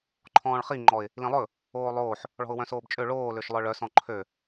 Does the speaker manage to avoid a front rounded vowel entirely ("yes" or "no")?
no